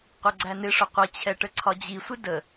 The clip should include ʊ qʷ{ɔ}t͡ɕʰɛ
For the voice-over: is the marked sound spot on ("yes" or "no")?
no